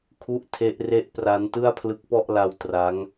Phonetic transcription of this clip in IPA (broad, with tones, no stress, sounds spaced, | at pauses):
kʰ u˥˩ ʔ tʰ e˦˥ ʔ r e˥˩ ʔ p r a˦˥ n t ɯ˥˩ a̯ pʰ l ɯ˦˥ k̚ p ɔ˥˩ ʔ l a˦˥ w t r a˦˥ ŋ